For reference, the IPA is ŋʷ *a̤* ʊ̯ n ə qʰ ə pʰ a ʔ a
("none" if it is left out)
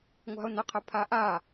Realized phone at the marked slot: a̤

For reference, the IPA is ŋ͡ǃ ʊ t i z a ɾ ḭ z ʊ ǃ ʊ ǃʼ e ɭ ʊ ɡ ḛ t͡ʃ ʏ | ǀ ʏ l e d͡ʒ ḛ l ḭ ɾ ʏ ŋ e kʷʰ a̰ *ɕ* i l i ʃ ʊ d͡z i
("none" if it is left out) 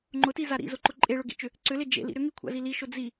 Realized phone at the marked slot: z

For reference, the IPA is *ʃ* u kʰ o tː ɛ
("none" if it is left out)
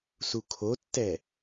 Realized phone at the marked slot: s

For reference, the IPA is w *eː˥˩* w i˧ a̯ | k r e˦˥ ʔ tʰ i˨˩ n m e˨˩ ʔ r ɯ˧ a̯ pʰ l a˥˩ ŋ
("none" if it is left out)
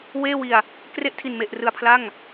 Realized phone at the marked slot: eː˥˩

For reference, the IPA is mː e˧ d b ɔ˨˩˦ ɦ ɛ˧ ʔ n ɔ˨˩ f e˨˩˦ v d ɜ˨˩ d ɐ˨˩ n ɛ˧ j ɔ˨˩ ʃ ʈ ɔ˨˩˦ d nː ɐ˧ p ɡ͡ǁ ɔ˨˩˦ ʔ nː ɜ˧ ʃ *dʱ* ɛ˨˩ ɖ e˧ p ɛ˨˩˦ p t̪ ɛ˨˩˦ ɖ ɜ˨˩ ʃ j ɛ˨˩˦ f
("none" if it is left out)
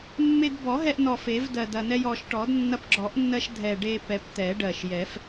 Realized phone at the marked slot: dʱ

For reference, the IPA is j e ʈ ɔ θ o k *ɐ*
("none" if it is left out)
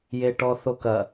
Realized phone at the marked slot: ɐ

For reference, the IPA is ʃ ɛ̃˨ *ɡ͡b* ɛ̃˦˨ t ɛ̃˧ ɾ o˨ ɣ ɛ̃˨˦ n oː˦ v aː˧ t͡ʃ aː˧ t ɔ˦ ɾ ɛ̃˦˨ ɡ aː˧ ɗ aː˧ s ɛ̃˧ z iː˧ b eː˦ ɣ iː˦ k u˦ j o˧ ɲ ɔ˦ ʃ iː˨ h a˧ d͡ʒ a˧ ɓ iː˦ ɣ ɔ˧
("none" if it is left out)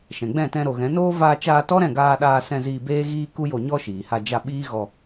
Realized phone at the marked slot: ɡ͡b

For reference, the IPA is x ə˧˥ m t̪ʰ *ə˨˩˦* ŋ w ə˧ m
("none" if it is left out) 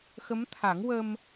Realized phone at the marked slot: a˨˩˦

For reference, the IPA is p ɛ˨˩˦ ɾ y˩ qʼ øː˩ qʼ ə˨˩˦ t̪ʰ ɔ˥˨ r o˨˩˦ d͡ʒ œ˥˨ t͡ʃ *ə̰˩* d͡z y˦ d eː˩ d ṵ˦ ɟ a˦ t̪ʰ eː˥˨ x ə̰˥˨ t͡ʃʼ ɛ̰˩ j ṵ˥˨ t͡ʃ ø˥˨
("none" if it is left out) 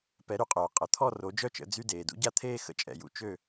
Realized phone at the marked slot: ə̰˨˩˦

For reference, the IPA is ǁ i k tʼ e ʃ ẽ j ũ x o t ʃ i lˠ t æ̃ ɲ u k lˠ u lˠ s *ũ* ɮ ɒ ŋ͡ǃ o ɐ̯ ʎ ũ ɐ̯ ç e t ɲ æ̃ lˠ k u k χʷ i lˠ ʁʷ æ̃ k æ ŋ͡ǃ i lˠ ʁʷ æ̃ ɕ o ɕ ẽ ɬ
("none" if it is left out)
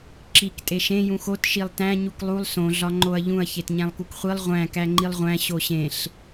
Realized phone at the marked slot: õ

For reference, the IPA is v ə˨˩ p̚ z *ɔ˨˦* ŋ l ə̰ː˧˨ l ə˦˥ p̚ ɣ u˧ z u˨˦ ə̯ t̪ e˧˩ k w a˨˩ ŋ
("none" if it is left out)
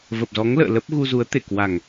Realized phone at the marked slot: ɔ˨˦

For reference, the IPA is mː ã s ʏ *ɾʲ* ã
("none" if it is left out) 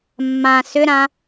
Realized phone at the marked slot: ɾ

